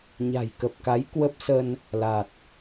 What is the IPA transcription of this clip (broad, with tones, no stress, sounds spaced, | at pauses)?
ɲ a̤˨˩ j k ə˨˩ p̚ k a˨˦ j k w ə˦˥ p̚ s ə˧ n | l a˨˩ t̚